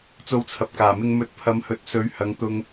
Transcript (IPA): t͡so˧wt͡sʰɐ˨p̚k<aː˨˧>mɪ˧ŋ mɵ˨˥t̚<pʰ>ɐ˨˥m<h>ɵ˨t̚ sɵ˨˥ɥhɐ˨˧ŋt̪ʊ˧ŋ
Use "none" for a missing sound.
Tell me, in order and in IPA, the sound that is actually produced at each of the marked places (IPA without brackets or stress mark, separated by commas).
aː˨˩, pʰ, h